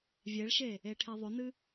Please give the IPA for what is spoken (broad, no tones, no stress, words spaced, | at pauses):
vʲeɭʃe | eʈʰeðˤɵnɨ